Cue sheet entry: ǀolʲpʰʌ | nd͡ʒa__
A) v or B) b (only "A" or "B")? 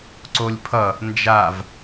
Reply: A